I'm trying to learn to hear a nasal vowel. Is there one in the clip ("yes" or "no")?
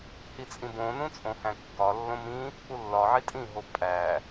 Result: yes